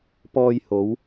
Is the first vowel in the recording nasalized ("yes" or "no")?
no